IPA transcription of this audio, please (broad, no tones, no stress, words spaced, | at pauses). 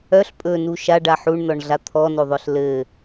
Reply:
œɬ pʼɵnu ʃaɖa ħuɳnɔɳɮa t̪ʰɔnoðˤœɬ lɘ